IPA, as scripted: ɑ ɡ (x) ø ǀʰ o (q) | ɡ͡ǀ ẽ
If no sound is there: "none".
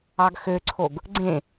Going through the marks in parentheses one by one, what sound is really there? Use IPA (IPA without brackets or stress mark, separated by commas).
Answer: x, ɡ